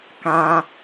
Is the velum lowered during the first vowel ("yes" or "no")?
yes